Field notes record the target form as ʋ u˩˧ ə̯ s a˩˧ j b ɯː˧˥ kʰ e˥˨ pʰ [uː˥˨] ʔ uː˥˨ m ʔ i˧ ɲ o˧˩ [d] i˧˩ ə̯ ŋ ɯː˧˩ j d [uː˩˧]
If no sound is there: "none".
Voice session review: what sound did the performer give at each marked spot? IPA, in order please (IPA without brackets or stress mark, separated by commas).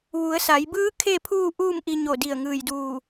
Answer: uː˥˨, d, uː˧˩